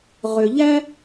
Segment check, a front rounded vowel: present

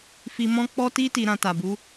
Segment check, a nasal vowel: present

